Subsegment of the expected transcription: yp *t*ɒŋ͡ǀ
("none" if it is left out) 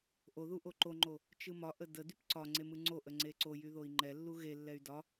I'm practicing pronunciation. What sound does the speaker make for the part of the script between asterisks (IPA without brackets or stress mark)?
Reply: ǀ